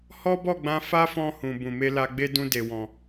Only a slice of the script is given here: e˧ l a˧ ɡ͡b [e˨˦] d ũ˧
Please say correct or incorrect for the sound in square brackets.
incorrect